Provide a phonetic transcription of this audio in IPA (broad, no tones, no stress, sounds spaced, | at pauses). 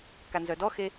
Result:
k a n z œ d ɔ x e